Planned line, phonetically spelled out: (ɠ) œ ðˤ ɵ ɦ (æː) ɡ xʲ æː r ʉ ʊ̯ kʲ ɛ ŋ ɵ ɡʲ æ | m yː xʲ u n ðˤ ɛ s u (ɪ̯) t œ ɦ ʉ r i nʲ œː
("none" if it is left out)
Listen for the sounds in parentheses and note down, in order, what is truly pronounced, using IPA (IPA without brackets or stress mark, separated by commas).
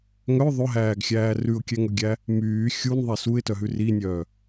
ŋ, æː, ɪ̯